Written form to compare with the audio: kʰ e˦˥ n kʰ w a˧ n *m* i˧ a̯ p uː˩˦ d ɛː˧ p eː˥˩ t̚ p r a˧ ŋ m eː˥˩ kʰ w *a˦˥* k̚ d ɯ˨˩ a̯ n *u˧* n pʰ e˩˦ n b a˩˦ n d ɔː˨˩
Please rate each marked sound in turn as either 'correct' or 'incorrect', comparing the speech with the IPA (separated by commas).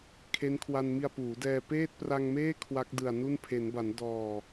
correct, correct, incorrect